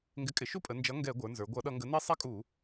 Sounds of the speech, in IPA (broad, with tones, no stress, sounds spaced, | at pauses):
ŋ ɡ ɪ˩˥ kʼ ɪ˩˧ ʃ u˦ pʼ ə˩˧ n d͡ʒ ʌ˩˥ ŋ ɡ ɛ˧˩˧ ɡʷ ə˞˩˧ n z ə˞˩˧ ɡʷ ʌ˧˩˧ ɗ ʌ˧˩˧ ŋ ɡ ə˩˥ n i˦ sˤ ɛ˦ kʼ u˧˩˧